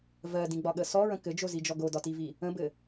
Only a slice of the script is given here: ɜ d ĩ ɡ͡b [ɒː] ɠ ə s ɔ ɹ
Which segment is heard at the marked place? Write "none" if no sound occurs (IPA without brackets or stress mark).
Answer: ɒ